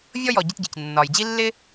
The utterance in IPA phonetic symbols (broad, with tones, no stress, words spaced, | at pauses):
vʲɔ˥jɔ˩ ɟi˧tɟi˩c nːɒː˩jd͡ʑi˥ lːɪ˥